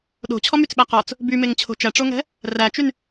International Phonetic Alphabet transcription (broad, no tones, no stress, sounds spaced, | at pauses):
ɗ o̤ t͡ɕʰ ɔ m y t͡s ɓ æ q ɔ t͡s | b y m e ŋ t͡ɕʰ o̤ t͡ʃ æ ʈ͡ʂ o ŋ ɛ̤ | r æ t͡ʃ y n